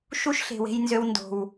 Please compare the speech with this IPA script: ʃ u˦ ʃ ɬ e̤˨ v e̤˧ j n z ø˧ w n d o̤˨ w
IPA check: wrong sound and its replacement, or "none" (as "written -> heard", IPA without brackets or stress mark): v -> w